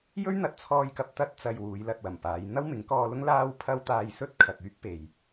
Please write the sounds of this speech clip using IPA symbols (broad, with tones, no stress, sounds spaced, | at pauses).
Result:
j ɵ˥ ɥ n̪ ɐ˨˥ t̚ t͡sʰ ɔː˧ j k ɐ˧ p̚ t̪ ɐ˥ t̚ t͡s ɐ˧ j w uː˨˧ j l ɐ˨ t̚ w ɐ˨˩ m p aː˨˧ j n̪ ɐ˥ w m ɪ˨˥ ŋ k ɔː˧ l ʊ˥ ŋ l aː˥ w pʰ ɐ˥ w t̪ aː˧ j s ɵ˥ t̚ kʰ ɐ˨ k̚ yː˥ k̚ p e˨ j